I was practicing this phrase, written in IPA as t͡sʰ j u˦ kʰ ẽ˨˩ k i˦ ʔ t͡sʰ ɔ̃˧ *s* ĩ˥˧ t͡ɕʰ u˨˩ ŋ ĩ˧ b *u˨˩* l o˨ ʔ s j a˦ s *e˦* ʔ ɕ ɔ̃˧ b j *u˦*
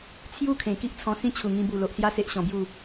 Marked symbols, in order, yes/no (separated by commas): yes, yes, yes, no